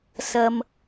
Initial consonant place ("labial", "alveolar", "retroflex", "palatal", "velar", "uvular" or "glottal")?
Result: alveolar